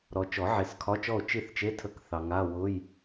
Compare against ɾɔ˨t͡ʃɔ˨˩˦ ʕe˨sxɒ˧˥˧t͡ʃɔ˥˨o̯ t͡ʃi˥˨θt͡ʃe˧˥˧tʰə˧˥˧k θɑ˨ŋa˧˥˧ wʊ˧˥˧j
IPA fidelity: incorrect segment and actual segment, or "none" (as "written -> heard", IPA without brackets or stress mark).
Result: x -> kʰ